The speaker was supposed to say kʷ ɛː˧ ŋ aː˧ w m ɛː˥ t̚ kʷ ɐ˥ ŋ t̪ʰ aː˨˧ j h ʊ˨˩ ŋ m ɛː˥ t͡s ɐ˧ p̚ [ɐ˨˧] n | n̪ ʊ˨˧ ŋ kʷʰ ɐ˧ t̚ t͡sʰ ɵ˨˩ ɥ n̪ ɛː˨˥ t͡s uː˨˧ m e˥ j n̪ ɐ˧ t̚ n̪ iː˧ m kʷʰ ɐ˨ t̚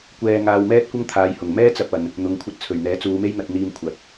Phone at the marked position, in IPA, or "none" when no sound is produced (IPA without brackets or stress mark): ɐ˨